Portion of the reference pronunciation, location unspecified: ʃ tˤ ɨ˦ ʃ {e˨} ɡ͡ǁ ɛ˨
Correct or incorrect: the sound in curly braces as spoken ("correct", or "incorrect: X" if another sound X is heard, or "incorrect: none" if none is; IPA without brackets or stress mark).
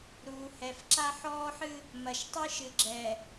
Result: incorrect: ɨ˨